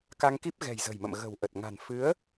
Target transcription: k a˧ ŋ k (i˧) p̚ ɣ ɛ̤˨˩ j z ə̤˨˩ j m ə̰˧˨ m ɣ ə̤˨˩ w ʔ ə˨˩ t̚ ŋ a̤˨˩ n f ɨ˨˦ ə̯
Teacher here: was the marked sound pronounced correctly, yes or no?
no